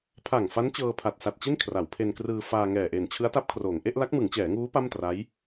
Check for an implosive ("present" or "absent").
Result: absent